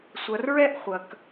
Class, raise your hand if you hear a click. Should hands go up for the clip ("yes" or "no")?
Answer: no